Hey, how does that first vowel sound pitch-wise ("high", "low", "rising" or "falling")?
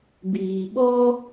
low